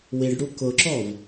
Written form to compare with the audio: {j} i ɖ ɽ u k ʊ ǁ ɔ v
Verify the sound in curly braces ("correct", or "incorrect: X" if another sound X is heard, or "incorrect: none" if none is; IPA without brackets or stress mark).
incorrect: w